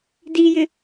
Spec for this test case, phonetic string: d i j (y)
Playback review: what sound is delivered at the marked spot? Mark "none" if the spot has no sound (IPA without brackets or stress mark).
ɪ